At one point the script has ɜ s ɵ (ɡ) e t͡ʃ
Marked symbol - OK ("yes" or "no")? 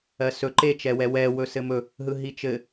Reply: no